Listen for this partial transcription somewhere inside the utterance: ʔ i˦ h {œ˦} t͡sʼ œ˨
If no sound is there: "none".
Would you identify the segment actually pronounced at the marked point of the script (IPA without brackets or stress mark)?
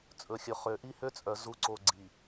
ø˦